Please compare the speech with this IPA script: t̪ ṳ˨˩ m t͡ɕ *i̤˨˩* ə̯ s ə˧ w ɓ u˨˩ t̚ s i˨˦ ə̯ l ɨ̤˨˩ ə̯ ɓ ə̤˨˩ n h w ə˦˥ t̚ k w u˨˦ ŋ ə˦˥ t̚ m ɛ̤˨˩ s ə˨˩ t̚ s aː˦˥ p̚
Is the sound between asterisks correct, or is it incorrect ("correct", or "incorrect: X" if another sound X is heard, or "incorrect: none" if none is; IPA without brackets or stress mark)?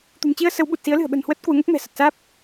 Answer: incorrect: i˧